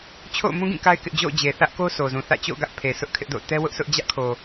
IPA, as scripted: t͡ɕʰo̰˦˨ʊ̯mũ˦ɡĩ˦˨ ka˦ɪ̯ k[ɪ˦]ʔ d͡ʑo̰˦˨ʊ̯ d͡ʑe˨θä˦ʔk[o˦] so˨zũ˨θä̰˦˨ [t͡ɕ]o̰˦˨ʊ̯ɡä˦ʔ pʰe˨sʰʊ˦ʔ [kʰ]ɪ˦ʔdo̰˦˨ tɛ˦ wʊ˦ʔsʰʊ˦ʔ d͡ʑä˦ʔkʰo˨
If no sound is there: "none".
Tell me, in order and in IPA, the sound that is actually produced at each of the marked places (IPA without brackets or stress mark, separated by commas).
ɪ˦, o˦, t͡ɕ, kʰ